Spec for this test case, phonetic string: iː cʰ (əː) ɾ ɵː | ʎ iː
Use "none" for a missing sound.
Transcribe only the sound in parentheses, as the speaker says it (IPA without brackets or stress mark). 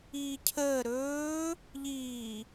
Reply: əː